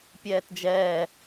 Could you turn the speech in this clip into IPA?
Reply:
pʲ ɛː t d͡ʒ ɛː

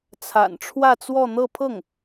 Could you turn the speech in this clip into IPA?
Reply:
t͡sʰ a̰˨˩ n ʈ͡ʂʰ w ä˥˧ t͡s w ɔ˥˧ n̪ ɤ˥˧ pʰ ɤ˥˩ ŋ

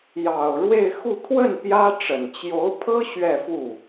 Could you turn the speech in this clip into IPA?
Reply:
j ɑ˨˩ ʊ̯ ɻ w e˥˧ ɪ̯ x u˥˧ t̪ʰ w ə˥˩ n p j ä˥ ʈ͡ʂ ə˨˩ n t͡ɕ j o˧˥ ʊ̯ pʰ ɤ˥ ɕ ɥ ɛ˥˧ f u˥˩

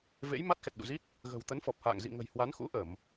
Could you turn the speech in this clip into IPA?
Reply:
v ḛ˧˥ j m a˦˥ t̚ x ɛ˨˩ t̚ ɗ ṵ˧˨ z i˦˥ t̚ | ɣ ə̤˨˩ w t̪ ə˨˦ n f ɔ˨˩ p̚ h a̰ː˧˨ ŋ z ḭ˧˨ ŋ ə̤˨˩ j h w a˨˦ n x ṵ˧˥ ʔ ə˧˩˨ m

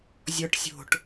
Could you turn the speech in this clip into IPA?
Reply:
zʲ ɔ ʈ sʲ o̤ ʈ

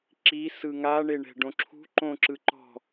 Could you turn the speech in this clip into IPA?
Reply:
ǁ i s ɯ ŋ a ɳ e ɳ ɛ̤ ɖ õ ǁʰ ṳ ǃ õ ǁ ɯ ǃ ɔ̤

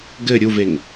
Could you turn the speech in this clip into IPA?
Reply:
ɡ ɘ ɾʲ u v e ŋ

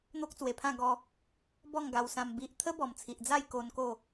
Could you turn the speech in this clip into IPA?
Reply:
n̪ o˦ k̚ t͡s w e˨˩ pʰ ã˥˧ ɡ ɔ˧ | b ɔ˥˧ ŋ ɡ a˧ w s ã˧ m b i˨ ʔ t̪ʰ ə˦ b ɔ˨˩ m t͡sʰ i˨ ʔ d͡z a˥˧ j k o˧ n k o˥˧

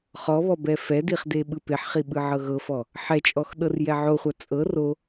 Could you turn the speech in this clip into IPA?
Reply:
χ ɔ β ɔ b ɛ f ɛ d i χ d e ɓ ɯ p e ħ χ i ɓ ɯ ʕ ɤ ɣ ɤ f ɔ | ħ ɛ t͡ʃʼ ɔ x ɗ ɤ r j ɛ ʕ o χʷ a t͡sʼ ɤ r o

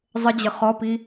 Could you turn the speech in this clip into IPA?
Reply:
zˤ ə d͡ʑ ə χ ɔ p i

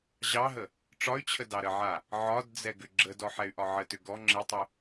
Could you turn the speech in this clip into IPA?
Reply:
ʑ ɑ ɦ ə | ʈ͡ʂ ɒ y̯ t͡ɕʰ ə d ɑ ɾ ə ʕ a | ʕ ɒ d d͡z ɛ ɡ ʏ ɡ͡ǁ ə d ɔ ħ ɛ y̯ ʔ ɒ ʕ ə t ʏ ɡ ɔ ŋ͡ǁ ɘ tˤ ʏ

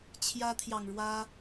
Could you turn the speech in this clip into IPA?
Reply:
t͡ɕʰ j ä˦ t̪ʰ j ɑ˨ ŋ ɻ w ä˦

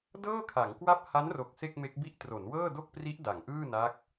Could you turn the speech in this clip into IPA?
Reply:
d ɤː˥˩ kʰ a˩˦ ŋ k w a˥˩ p̚ h a˦˥ n r o˨˩ k̚ s e˥˩ k̚ m e˦˥ k̚ b i˥˩ ʔ t r o˩˦ n w ɤː˥˩ d o˥˩ k̚ p r i˦˥ ʔ d a˩˦ ŋ ʔ ɯː˥˩ n a˦˥ k̚

